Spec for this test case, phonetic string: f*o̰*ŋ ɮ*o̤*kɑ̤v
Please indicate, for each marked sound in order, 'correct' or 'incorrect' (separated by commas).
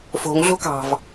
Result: incorrect, correct